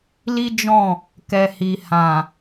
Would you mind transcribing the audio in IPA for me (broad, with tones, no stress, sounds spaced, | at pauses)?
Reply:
l i˦ d͡ʒ ɔ̃˦˨ | k ɛ˨ h i˨ h ã˨